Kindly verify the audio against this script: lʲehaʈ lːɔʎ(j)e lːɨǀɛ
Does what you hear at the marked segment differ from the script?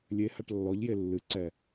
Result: no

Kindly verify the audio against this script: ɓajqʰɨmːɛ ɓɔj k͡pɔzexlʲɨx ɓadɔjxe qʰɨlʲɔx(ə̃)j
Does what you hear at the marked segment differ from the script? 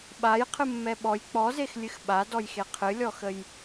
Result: yes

